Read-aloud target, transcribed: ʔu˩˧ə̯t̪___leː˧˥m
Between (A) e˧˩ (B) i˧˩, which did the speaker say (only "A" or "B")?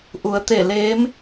A